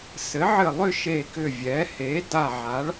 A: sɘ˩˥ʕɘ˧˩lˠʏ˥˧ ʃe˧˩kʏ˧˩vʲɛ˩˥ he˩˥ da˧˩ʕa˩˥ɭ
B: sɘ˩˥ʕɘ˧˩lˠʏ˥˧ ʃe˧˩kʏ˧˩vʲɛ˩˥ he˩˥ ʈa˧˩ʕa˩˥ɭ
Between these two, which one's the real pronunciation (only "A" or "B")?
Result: A